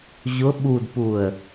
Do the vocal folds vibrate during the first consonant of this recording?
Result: yes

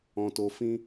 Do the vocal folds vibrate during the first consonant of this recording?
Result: no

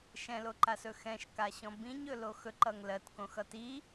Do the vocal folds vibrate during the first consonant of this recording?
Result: no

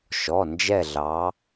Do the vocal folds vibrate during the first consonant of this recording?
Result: no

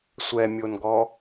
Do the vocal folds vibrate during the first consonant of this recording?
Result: no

